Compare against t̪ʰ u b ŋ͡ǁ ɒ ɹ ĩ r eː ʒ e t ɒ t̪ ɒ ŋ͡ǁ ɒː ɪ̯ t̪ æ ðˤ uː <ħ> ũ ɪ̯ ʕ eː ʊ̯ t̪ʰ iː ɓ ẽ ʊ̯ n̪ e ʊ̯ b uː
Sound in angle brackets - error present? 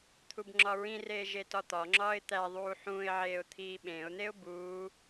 no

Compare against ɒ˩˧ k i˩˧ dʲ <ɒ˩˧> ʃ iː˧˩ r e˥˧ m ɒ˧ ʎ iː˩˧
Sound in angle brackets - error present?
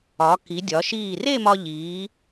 no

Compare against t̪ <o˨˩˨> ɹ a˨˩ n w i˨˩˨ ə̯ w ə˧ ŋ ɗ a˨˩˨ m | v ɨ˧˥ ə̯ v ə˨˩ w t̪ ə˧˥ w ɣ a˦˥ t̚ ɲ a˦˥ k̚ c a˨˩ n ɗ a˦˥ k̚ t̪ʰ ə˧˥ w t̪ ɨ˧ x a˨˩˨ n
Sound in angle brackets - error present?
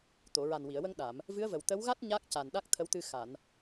no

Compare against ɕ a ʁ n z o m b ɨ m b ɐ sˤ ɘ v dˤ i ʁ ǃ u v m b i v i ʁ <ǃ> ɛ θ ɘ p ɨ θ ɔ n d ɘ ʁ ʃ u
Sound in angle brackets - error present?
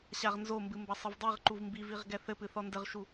yes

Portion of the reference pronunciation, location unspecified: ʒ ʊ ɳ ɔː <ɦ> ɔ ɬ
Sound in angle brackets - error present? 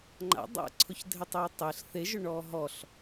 no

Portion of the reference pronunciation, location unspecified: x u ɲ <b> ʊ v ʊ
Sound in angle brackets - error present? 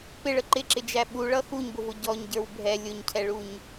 no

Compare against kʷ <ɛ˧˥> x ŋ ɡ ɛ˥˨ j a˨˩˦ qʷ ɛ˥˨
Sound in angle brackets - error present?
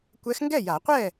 no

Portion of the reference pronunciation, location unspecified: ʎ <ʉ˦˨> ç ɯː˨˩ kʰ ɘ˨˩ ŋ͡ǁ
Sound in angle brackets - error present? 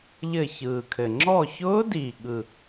yes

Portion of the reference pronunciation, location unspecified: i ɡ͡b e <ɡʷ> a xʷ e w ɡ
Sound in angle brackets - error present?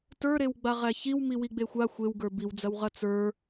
yes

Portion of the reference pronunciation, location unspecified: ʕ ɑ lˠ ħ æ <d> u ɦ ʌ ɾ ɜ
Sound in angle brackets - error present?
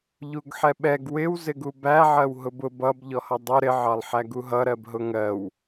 yes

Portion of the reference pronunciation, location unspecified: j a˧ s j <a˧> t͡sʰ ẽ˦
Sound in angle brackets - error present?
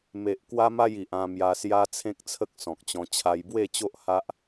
yes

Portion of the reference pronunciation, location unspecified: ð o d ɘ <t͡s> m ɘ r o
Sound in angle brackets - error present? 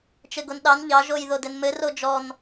yes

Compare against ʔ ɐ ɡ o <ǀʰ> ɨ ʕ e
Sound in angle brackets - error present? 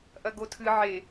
yes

